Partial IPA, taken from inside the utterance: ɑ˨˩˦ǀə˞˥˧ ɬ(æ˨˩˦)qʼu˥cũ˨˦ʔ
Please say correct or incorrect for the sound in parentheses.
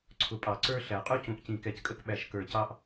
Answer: correct